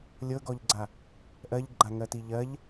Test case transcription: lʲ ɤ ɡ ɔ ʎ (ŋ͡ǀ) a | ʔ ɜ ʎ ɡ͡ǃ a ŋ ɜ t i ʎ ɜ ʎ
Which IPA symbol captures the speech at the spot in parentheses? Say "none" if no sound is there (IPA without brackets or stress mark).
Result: ɡ͡ǀ